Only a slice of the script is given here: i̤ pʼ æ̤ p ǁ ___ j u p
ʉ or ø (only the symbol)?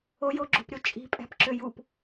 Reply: ø